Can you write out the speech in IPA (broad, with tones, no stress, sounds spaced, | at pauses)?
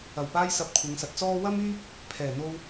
ɐ˨˩ w p aː˧ j s ɐ˨ p̚ kʷʰ ɐ˨˧ ŋ s ɐ˨ t̚ t͡s ɔː˥ w ɐ˥ m yː˥ p̚ | pʰ ɛː˨˩ n̪ o˧ w